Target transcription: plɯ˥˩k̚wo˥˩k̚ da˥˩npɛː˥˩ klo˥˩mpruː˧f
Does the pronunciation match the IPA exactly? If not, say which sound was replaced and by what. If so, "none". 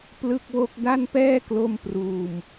f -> m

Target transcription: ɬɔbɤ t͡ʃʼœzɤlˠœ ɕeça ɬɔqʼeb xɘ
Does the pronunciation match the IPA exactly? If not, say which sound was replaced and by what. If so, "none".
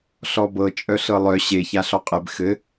z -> ɬ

